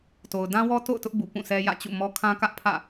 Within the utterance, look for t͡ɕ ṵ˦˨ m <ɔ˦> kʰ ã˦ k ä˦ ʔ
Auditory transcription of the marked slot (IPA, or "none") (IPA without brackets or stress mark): ɔ˦